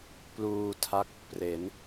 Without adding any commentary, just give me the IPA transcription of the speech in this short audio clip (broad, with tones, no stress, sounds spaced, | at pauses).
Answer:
p l uː˧ tʰ a˥˩ k̚ | p r e˩˦ n